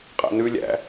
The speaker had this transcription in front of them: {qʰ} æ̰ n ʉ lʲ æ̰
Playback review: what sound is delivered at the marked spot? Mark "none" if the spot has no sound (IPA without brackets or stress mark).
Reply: qʼ